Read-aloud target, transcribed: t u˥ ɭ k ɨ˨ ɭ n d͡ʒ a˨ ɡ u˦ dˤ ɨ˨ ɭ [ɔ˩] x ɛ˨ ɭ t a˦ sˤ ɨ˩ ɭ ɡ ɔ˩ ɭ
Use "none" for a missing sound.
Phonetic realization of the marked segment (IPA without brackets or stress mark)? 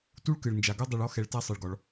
ɔ˥